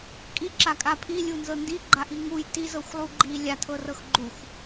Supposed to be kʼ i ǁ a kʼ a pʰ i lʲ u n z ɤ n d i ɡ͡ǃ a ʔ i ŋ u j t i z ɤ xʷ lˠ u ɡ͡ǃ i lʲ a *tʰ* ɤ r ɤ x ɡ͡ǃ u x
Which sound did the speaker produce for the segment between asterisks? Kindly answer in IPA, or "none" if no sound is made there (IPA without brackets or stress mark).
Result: tʰ